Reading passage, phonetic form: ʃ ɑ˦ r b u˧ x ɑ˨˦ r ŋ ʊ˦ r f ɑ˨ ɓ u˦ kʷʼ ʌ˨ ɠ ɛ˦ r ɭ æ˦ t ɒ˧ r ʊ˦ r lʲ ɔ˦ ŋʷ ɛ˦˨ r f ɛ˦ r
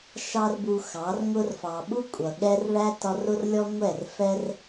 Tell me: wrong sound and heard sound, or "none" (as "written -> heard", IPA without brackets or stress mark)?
none